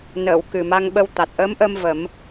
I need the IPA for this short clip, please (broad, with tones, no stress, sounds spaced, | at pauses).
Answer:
n əː˨˩˨ w k ɨ˨˩ m a˧ ŋ ɓ ə˧ w t̪ a˨˩ t̚ ʔ əː˧˥ m ʔ əː˧ m v ə˨˩˦ m